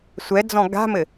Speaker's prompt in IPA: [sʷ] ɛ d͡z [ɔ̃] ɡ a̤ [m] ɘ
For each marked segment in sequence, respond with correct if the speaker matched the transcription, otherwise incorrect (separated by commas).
correct, correct, correct